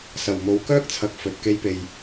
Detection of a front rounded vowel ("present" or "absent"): present